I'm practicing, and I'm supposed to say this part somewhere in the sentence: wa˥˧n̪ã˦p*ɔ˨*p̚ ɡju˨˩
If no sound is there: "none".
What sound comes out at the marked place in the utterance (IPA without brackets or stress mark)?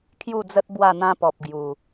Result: ɔ˨